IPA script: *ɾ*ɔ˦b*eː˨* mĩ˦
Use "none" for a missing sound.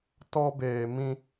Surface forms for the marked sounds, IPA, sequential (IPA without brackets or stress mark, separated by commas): t, eː˨